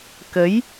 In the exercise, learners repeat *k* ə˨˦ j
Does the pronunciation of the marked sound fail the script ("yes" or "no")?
no